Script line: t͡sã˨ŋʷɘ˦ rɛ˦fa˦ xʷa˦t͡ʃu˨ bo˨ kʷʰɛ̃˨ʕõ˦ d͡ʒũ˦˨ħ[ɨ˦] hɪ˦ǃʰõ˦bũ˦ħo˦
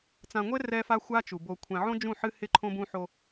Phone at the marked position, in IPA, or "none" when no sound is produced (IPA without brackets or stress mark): ɨ˦